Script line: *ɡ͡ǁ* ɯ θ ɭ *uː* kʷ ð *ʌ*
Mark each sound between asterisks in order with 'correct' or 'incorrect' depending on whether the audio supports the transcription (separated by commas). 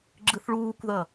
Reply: correct, correct, correct